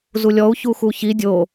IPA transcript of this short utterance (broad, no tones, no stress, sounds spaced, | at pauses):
z u lʲ ɔ u̯ ç u x u ç i dʲ o